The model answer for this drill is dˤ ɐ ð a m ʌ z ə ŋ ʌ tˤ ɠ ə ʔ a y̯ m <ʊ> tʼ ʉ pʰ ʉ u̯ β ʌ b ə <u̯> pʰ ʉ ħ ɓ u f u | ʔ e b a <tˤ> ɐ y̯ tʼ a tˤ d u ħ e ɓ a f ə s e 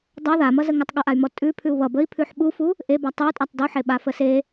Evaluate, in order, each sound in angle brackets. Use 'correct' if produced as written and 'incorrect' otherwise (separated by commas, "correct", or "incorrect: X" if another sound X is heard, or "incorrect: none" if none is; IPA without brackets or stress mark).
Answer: incorrect: ɔ, incorrect: i̯, correct